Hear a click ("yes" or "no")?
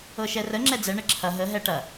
yes